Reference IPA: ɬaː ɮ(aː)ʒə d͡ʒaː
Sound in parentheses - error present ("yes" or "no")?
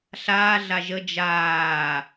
yes